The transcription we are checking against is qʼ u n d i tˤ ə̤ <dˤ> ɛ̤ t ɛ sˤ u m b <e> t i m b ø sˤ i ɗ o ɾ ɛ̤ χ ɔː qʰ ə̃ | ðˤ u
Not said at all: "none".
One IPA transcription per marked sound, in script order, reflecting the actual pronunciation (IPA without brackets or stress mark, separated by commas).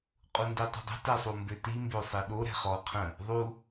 dˤ, ø